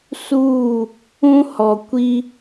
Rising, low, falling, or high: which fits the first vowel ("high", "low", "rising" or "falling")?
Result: falling